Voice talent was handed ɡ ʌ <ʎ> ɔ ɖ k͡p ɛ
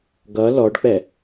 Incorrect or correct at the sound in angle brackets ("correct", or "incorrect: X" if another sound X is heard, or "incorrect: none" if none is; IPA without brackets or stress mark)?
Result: incorrect: l